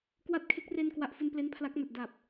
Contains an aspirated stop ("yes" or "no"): yes